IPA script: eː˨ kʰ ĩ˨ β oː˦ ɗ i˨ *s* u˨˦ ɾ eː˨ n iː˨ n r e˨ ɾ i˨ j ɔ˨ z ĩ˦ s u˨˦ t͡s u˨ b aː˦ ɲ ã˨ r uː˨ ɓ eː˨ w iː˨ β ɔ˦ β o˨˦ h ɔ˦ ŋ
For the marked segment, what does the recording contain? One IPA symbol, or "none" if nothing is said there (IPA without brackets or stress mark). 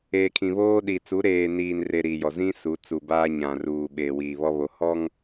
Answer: t͡s